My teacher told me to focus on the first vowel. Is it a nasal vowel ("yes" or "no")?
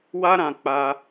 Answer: no